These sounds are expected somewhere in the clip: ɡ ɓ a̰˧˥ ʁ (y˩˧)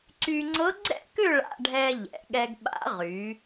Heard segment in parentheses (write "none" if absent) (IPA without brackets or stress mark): y˩˧